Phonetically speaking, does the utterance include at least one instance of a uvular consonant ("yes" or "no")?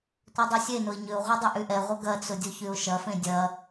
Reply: yes